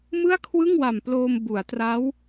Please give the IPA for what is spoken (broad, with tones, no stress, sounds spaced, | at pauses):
m ɯ˥˩ a̯ kʰ w ɯ˥˩ ŋ w a˨˩ m p l oː˧ m b u˩˦ a̯ t r a˦˥ w